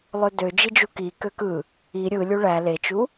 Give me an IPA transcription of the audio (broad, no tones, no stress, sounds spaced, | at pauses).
lˠ ø d ø d͡ʒ i d͡ʒ u k i k ø k ɯ | i ɾʲ ɯ lʲ u ɭ æ l e t͡ʃ u